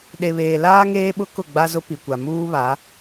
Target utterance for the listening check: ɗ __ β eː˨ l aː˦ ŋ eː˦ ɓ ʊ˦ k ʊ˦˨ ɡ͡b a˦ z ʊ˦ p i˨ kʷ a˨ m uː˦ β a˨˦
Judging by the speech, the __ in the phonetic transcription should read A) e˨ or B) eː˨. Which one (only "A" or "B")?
A